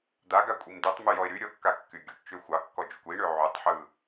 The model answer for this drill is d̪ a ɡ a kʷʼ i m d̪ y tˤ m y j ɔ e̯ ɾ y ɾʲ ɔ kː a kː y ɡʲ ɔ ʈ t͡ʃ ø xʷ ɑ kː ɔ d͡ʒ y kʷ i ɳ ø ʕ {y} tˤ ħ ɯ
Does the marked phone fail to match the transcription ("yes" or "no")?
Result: no